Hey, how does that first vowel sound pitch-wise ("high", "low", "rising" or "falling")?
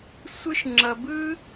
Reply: high